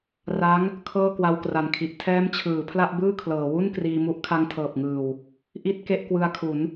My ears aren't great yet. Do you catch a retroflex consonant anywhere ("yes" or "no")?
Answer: no